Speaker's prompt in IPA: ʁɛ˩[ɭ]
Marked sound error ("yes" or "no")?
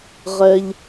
yes